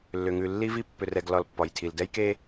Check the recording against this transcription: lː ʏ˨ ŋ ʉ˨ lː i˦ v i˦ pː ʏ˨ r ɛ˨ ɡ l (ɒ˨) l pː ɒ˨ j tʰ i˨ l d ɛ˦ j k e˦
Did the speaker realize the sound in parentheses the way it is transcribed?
yes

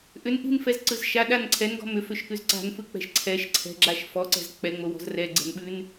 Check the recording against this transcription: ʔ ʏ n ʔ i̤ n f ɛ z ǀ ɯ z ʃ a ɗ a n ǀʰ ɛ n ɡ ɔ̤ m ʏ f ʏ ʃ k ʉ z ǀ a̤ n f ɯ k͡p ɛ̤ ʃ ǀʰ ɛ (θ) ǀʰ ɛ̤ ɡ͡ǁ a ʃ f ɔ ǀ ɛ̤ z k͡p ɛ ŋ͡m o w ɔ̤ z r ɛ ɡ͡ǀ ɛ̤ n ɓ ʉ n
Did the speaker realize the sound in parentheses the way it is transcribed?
no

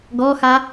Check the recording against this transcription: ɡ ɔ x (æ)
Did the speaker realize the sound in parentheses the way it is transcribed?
no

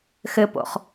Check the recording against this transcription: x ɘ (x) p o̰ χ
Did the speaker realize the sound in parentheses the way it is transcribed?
no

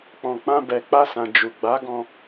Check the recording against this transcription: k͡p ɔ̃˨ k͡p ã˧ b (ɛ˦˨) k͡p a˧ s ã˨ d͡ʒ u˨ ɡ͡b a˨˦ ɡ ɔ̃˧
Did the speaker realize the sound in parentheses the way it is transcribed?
no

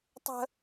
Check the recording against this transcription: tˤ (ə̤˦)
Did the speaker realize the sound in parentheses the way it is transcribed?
yes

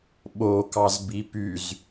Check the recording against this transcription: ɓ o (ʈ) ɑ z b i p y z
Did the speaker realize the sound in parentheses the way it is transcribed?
no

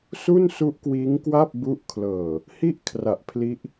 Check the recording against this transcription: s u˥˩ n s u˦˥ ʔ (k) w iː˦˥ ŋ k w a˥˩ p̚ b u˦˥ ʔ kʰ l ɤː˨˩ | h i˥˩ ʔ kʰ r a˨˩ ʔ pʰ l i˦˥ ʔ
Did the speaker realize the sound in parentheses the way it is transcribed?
yes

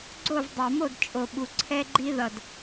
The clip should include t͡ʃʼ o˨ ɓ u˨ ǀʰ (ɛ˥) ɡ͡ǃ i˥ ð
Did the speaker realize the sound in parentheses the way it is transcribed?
yes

